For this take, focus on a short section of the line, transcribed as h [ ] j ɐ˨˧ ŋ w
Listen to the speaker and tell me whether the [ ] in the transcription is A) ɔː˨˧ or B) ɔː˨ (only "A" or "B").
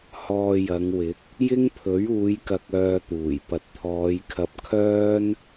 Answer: B